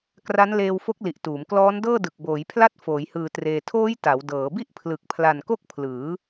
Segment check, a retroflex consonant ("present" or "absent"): absent